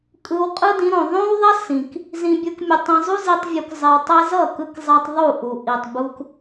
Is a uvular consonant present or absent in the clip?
present